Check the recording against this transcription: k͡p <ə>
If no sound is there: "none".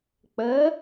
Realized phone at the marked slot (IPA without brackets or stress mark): ə